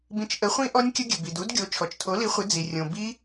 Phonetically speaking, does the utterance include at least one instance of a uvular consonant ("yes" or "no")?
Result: yes